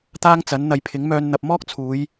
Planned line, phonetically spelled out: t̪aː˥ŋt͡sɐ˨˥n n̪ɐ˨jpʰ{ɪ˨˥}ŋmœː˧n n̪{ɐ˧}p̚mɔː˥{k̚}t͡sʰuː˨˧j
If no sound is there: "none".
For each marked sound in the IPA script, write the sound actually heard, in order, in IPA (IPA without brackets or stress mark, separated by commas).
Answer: ɪ˨˥, ɐ˨, k̚